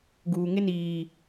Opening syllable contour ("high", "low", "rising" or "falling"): low